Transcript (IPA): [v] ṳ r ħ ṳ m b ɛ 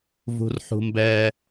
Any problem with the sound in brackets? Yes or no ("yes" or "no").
no